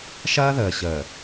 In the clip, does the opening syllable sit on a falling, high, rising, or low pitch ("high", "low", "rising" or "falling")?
high